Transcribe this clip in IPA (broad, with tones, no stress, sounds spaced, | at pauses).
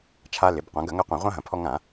t͡ʃʰ a˧ l ɪ˩˧ b qʷ ã˩˧ ɡ ɐ˧˩˧ ŋ ɐ˧˥ qʷ ɐ̃˧˩˧ ʁʷ ã˧ ɦ ɐ̃˩ pʰ ɔ˧ ŋ ã˧˩˧